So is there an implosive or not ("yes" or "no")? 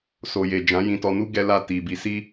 no